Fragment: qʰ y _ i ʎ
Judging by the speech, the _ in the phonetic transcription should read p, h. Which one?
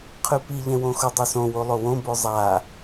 p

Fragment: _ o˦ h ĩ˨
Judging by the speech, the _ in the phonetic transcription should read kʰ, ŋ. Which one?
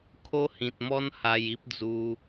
kʰ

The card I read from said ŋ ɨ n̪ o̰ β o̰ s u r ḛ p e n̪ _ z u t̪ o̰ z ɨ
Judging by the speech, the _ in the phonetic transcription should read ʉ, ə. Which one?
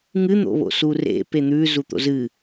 ʉ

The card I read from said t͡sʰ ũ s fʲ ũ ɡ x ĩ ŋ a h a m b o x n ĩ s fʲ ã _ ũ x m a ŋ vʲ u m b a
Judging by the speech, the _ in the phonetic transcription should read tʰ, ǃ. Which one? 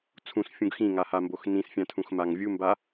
tʰ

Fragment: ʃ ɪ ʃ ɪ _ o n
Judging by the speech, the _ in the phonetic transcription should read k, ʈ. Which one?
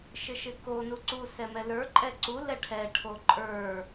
k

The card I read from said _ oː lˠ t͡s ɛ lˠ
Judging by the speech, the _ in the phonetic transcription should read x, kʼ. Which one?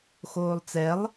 x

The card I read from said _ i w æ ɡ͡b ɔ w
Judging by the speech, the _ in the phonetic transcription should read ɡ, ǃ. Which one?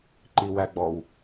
ǃ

